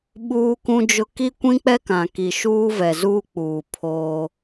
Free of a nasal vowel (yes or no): no